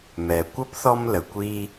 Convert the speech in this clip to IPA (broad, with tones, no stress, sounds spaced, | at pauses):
m ɛ˩ kʷ ʌ˥ p θ ɔ˦ m l ə˩ kʷ i˦